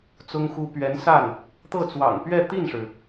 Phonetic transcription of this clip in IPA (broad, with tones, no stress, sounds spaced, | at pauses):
t͡s ʊ˥ ŋ x u˥ p ɥ ɛ˧˥ n s a˥˩ n | t̪ ɤ˥˩ t͡s w ɑ̰˨˩ ŋ p ɥ ɛ˥˧ t̪ i˥˩ n ʂ ɻ̩˩